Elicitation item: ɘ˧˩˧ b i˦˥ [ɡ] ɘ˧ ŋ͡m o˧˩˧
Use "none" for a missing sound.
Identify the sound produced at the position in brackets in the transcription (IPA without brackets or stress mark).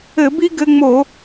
ɡ